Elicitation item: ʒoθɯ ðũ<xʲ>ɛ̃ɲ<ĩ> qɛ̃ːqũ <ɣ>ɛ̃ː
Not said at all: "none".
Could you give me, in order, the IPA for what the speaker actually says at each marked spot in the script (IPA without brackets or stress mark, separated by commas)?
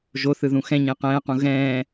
x, ẽ, ɣ